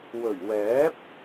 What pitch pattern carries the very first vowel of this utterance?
low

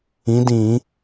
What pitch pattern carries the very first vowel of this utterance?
rising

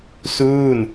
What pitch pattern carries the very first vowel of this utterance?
falling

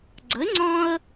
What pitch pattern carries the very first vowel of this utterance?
rising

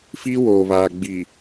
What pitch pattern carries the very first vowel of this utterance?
high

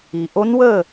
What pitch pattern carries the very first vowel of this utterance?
low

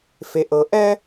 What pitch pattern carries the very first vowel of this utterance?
low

